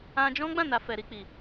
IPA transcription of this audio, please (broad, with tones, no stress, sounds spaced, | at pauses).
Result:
ã˧ d͡ʒ ɔ̃˦ ɡ͡b ã˦˨ n a˨ f ɛ˨ ɾ i˧ k͡p i˨